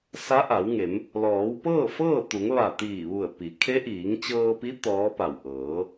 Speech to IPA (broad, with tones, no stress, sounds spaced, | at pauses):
s a˧˥ ʔ a˩˧ w ŋ e˩˧ m | l ɔː˩˧ w p ɤː˥˨ f ɤː˥˨ t̪ u˩˧ ŋ ʋ a˧˩ t̪ iː˧˩ ʋ u˧˩ ə̯ p i˩˧ kʰ e˧˥ ʔ iː˩˧ ŋ t͡ɕ ɤː˧ p i˧˥ t̪ ɔː˧˥ p a˧˩ w ʔ ɤː˩˧